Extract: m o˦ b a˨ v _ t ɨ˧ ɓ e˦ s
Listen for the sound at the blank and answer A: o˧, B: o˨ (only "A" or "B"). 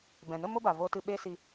A